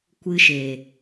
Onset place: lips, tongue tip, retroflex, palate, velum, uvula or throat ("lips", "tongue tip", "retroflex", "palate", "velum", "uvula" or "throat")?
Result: velum